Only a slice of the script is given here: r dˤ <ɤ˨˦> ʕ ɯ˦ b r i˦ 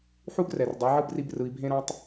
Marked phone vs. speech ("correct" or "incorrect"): incorrect